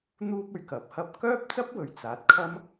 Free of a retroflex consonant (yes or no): yes